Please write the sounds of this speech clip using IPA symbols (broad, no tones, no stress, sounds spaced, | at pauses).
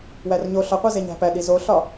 w æ r ɲ o ɬ ɒ qʷ i z e ɲ æ̤ p æ ɗ i z o ɬ ɒ